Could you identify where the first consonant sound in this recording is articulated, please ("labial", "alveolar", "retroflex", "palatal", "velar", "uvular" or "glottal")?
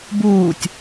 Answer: labial